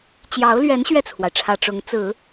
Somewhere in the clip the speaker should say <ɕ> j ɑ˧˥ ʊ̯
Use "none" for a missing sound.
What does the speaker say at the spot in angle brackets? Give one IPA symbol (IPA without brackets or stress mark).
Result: t͡ɕ